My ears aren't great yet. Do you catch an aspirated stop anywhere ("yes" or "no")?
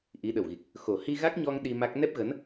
no